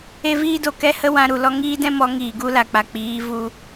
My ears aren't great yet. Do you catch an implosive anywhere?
no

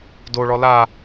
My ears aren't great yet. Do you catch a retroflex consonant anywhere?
yes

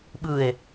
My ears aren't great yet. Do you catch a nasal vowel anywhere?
no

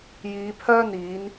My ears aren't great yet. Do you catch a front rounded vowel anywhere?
yes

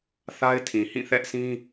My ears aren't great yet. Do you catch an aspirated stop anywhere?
yes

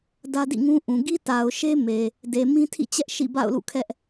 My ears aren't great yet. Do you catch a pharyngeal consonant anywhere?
no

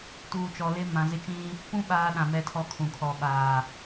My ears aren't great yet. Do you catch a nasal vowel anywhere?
yes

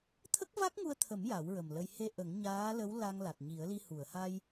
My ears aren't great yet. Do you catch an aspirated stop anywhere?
yes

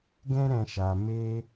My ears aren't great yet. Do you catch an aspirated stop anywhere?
no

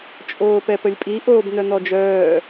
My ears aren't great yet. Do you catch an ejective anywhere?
yes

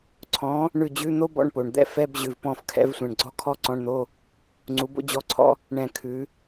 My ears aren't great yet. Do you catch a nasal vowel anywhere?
yes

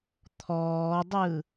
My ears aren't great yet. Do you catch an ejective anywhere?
no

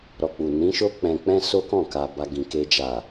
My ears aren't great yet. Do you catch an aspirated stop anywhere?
no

